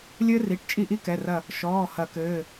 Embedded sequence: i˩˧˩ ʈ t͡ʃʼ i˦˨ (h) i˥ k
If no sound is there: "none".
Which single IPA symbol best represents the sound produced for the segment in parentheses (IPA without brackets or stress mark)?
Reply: ʔ